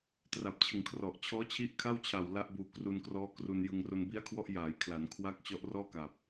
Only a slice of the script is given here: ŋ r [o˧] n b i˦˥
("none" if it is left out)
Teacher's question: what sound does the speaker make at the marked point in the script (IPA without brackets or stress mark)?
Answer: o˧